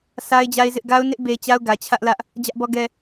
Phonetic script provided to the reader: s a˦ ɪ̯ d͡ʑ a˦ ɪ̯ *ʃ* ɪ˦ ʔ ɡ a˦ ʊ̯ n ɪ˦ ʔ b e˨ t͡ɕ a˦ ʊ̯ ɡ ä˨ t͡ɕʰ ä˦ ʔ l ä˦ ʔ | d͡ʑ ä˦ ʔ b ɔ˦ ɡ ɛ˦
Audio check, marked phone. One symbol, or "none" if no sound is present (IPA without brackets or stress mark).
z